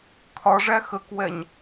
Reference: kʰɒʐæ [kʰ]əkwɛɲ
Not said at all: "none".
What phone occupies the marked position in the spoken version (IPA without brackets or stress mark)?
x